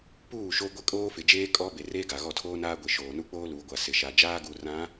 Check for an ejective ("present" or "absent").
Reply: present